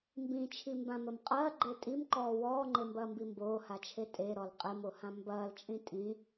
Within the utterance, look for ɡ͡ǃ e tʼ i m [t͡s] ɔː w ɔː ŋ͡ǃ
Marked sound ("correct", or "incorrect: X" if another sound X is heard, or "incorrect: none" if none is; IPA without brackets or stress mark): incorrect: ǃ